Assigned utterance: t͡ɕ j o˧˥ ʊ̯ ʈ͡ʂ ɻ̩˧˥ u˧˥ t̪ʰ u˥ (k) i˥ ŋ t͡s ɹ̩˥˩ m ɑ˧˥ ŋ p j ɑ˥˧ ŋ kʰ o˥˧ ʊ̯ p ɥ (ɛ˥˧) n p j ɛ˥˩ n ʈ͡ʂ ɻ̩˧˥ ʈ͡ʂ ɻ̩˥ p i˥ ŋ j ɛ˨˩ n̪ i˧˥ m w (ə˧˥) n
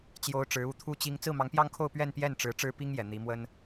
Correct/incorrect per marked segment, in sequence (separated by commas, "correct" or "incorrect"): incorrect, correct, incorrect